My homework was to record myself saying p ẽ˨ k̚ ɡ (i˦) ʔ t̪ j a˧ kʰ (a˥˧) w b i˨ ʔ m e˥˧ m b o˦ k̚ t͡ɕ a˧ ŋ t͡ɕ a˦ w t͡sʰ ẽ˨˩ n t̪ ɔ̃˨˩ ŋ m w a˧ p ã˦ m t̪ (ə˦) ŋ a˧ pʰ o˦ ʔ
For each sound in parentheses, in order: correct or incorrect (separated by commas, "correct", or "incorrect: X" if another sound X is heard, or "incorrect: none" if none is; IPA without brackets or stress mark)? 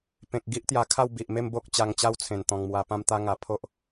correct, correct, incorrect: a˦